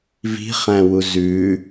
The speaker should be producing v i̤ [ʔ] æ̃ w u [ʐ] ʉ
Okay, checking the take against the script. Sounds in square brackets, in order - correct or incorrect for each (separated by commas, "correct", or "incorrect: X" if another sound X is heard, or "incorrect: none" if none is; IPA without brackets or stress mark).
incorrect: χ, incorrect: z